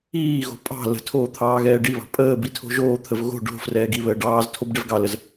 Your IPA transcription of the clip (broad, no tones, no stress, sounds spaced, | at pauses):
iː ɣ o̤ pʼ ɑ̤ l ə̤ tʰ oː t̪ʰ ɑː ɣ ɛː ɖ i β ɑ̤ pʼ əː b i tʰ o̤ ʒ oː t̪ʰ ə v ɣ o̤ ɖ o̤ f r ɛː ɡ i β əː ɖ ɑː z tʰ o b ɖ ɛ v ɡ ɑ l ə z